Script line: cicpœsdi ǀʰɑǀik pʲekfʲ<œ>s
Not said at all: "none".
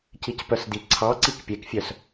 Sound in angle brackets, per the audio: œ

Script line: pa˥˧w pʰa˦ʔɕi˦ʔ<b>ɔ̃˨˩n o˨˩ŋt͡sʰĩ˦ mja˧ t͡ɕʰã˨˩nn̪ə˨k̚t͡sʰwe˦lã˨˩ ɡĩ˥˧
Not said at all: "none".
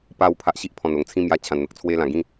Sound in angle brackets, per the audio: pʰ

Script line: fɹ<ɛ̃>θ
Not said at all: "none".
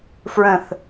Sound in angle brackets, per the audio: ə̃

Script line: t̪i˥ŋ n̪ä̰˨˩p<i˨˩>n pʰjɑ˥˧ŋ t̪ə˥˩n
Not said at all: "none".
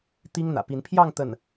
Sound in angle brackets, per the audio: i˧˥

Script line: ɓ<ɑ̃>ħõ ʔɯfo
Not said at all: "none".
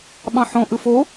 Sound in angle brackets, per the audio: ɑ̃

